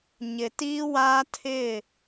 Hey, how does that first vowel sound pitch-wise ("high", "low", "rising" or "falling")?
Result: low